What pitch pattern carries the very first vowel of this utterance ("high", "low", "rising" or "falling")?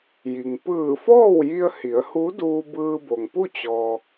low